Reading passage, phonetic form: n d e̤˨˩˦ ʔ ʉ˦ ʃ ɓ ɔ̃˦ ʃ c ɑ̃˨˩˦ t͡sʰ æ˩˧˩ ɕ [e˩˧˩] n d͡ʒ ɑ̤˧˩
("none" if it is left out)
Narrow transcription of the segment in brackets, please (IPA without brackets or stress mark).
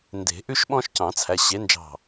e˨˥